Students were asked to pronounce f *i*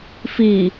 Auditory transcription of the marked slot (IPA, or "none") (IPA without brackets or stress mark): i